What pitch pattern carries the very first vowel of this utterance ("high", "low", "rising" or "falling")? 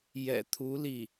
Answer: low